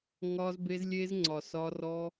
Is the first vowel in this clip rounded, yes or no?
yes